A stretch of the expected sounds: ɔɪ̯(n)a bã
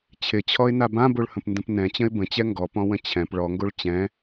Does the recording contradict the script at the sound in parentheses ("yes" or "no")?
no